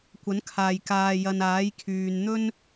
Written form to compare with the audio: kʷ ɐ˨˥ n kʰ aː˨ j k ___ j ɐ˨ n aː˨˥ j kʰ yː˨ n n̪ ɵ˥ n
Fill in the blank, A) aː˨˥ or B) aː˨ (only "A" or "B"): B